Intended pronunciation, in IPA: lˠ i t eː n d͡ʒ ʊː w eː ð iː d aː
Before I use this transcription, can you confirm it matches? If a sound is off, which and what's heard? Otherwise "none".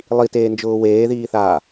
d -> θ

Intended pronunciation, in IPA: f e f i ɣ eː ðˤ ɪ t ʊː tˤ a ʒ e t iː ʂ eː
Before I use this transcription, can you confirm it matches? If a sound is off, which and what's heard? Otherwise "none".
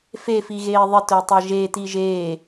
ʂ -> ʒ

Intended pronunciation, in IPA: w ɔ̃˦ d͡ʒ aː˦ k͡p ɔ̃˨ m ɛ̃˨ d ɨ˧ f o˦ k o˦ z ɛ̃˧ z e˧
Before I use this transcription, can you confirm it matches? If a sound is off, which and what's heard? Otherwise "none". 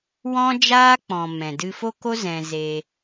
none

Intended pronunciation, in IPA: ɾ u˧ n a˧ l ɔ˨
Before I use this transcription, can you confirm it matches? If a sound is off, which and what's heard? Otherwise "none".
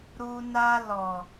none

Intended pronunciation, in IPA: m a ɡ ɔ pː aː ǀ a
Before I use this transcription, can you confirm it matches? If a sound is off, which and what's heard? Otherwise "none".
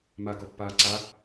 none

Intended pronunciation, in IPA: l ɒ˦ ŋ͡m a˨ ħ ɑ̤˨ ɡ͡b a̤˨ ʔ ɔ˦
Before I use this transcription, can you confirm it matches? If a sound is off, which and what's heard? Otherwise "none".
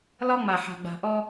ɑ̤˨ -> a̤˨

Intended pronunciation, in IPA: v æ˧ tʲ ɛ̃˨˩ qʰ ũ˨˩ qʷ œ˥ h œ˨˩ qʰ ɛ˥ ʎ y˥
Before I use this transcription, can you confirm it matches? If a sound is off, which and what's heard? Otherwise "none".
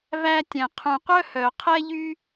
none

